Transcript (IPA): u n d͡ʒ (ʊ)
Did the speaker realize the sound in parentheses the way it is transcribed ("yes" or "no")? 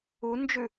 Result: no